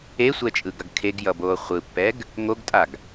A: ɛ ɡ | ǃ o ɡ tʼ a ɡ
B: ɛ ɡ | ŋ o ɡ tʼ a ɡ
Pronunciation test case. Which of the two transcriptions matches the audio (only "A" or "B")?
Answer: B